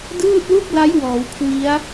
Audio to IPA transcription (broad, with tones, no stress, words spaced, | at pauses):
dɯː˥˩t̚lu˥˩k̚la˦˥j wɔː˩˦wkʰwi˦˥a̯